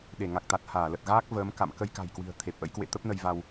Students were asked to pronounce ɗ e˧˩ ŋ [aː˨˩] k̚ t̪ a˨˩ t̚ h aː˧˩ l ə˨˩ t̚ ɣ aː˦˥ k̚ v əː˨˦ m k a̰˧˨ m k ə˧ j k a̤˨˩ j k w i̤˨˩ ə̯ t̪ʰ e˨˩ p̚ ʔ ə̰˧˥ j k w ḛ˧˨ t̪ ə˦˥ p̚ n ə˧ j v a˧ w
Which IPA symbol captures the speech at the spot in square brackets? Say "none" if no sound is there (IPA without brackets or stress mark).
a˨˩